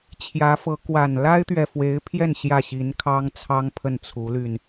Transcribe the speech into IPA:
t͡ɕʰ j ä˧˥ f ɤ˧˥ k w a˨˩ n l a˥ ɪ̯ t̪ ɥ ɛ˨ f w e˧˥ ɪ̯ pʰ j ɛ˥˧ n ɕ j ä˥˩ ɕ i˧˥ n kʰ ɑ˥ ŋ t͡sʰ ɑ˥ ŋ pʰ ə˥˩ n t͡sʰ u˧˥ l y˧ n

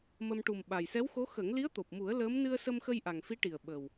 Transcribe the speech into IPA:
m ə˧ m ʈ u˨˩ m ɓ a˨˩ j s ɛ˧˥ w x o˧˥ x ə˨˩˦ ŋ l i˧˥ ə̯ t̪ o˨˩ p̚ m u˨˩˦ ə̯ l əː˧˥ m n ɨ˧ ə̯ s ə˧ m x ə˧ j ʔ a˨˩ ŋ f i˧˥ ʈ i˨˩ ə̯ ɓ ə˨˩ w

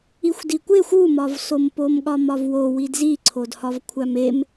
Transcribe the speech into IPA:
i xʷ d i kʷ e xʷ u m ɒ v s o m p o m ɠ ɒ m ɒ v w o w i d z i ǀʰ o d h ɒ v kʷʰ æ m e m

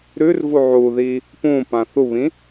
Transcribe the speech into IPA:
ɾ ʉ r v u ʕ u ð i | p ũ p ã θ u β ĩ

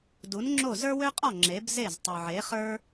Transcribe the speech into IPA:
d u˩˥ n ŋ͡ǁ o˥˩ z ə˞˥ w ø˥ qʼ ɔ˥˩ ŋ͡ǁ e˩˥ b z e˥˩ z tˤ u˩ ʕ e˩˥ χ ə˞˥

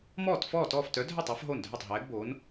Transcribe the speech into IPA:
m ɔː˥˩ t f ɔː˥˩ t ɔː˥˩ f t œ˨˥ dʱ œ˥˩ tˤ œ˨˥ f ɦ o˥˩ n dʱ œ˥˩ tˤ ɦ ɛː˨˥ ɡ b oː˨˥ n

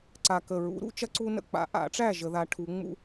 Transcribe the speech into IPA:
ǀ a˨˩ k ə˨˩ ɹ ṵ˨˩˦ ɾ ṵ˧˥ t͡ʃ ɐ˥ ǀ u˥ n ə̰˥˨ k͡p a̰˨˩˦ ʔ a̰˨˩˦ ʈ͡ʂ æ˥˨ ʒ ə˨˩˦ ð a˧˥ ʈʰ u˧˥ ŋ͡m ṵ˥

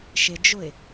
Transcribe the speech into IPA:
ʃ ɪ d͡ʒ ʊ ɪ̯

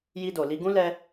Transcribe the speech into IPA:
j i˧ d o˨ l i˧ ɡ ũ˦ l ɛ˧

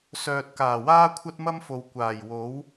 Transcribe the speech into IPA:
s œː˨ t̚ k aː˨˩ w aː˥ kʷʰ ɐ˥ t̚ m ɐ˥ m f o˨ w kʷ aː˨˩ j w o˨˥ w

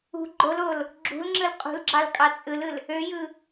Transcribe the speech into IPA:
ṳ ɡ͡ǃ o l o l | ɡ͡ǁ ṳ l ŋ͡ǁ ɯ l qʼ ṳ l ɡ͡ǁ ɑ l kʼ ɑ t͡sʼ ɯ l ɯ l | ø j ɯ

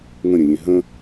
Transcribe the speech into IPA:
ŋ ə̃ ɾʲ ə̃ lʲ ẽ ɦ ə̃

